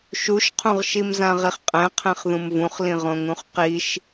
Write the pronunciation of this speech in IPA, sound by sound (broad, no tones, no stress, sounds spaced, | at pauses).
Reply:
ʃ u ʃ qʰ ũ ʁ ʃ i m z ã ʁ i χ qʼ ɛ̃ qʰ ɛ̃ χ ð ũ m v ũ χ l ĩ ʁ õ ŋ ũ χ q i ʃ